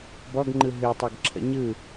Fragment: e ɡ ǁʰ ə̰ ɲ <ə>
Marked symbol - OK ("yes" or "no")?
no